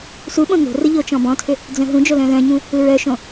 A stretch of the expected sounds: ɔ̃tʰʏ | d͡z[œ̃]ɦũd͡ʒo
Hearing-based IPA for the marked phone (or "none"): œ̃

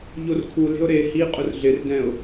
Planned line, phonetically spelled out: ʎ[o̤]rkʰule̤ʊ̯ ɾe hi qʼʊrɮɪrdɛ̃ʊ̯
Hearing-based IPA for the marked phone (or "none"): o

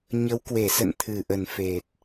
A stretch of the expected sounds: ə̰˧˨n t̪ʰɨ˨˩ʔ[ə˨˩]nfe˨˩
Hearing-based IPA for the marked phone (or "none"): ə˨˩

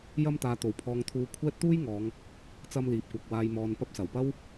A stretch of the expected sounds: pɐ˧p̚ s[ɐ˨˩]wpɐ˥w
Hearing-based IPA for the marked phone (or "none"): ɐ˨˩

